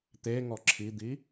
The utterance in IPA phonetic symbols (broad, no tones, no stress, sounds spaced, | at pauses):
t̪ e ŋ ɔ ǁʰ i d̪ i